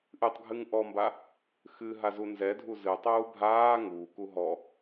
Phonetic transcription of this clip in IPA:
ʔ ɨ tˤ ɡʱ ɨ ŋ ʔ ɔ m b a | x ɨ ɦ a z u n z ɛ dʱ u z ɨ tˤ uː bʱ aː ŋ uː k u ɦ ɔ

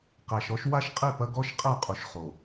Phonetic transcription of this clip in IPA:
q æ˨ ʃ ɔ˦ ʃ w a˦ ʃ qʼ e˦˨ p ɐ˦ ɡ ɔ˦ ʃ qʼ æ˦˨ qʼ u˨ ʃ χ o˨

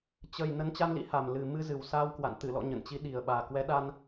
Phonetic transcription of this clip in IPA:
t͡ɕ ə˨˩ j n ə˨˦ n t͡ɕ a˧ n l ḭ˧˥ h a˨˩ m l ɨ˨˩ m ɨ˧ z ɨ˨˩ w s aː˧ w k w a̰˧˨ n t̪ ɨ˧˩ l ɔ̰˧˨ ɲ ə̰˧˨ n t͡ɕ i˨˦ ɗ i˨˩ ə̯ ɓ aː˨˩ k w ɛ˨˦ ɗ a˧ n

